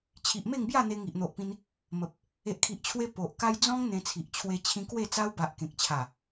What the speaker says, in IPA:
t͡ɕʰi˨ʔme˥˧ŋbja˥˧ n̪e˧ŋi˨ʔn̪o˨ʔpĩ˧n | mə˨p̚ | e˨ʔkʰi˨ʔt͡ɕʰwe˧ po˨ʔka˦j d͡zɔ̃˦ŋ n̪ẽ˧t͡sʰi˨ʔ t͡ɕʰwe˧t͡ɕʰĩ˧kwe˥˧t͡sa˦w ba˨ʔ kẽ˨k̚t͡ɕʰa˨˩

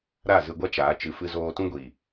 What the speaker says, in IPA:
ɾa˦˨zɨ˧ɡʷa˦ t͡ʃaː˨˦t͡ʃɨ˧fɨ˦ zoː˧tũ˦ɡʷiː˨

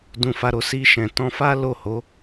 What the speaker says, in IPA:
dũ˧fa˧ɾo˧ si˧ʃɛ̃˨tɔ̃˧fa˦ lo˦˨ho˨˦

